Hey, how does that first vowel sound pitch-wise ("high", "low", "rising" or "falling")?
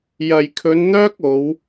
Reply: low